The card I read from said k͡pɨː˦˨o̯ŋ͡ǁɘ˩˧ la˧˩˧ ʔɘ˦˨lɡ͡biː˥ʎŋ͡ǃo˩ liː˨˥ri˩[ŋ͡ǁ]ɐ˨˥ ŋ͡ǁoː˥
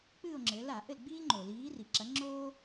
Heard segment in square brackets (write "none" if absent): ǁ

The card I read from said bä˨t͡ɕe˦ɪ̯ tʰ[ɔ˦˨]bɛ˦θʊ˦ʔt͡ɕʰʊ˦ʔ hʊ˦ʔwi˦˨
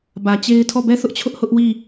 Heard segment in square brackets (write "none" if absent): ɔ˦˨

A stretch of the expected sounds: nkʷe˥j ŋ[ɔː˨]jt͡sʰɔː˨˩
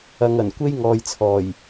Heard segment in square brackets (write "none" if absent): ɔː˨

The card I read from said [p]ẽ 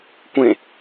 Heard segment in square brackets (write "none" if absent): kʷ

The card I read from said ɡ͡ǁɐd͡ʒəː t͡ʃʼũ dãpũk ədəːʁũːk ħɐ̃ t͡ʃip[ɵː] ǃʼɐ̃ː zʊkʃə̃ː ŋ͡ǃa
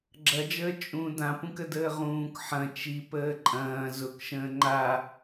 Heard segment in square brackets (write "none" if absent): əː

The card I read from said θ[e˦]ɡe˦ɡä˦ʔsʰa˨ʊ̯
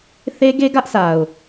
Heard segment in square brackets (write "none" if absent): e˦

